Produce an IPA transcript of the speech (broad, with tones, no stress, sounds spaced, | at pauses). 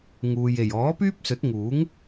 ŋ uː˨ j e˨˩ j ɔː˨˥ p yː˥ p̚ s ɵ˨˥ t̚ ŋ uː˨˥ ŋ